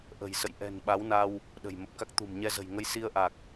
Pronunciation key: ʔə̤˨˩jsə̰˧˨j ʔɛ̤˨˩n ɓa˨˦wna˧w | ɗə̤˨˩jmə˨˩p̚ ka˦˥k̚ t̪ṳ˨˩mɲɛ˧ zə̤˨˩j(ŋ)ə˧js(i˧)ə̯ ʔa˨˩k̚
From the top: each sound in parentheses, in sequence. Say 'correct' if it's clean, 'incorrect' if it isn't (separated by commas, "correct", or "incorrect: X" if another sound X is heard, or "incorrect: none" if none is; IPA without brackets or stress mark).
correct, correct